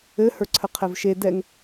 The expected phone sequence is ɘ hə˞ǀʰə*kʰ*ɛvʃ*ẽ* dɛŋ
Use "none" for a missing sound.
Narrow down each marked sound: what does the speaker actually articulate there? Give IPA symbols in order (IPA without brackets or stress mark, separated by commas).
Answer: qʰ, e